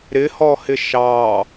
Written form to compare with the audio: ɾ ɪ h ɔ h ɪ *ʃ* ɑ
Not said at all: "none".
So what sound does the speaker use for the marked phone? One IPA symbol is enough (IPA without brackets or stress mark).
ʃ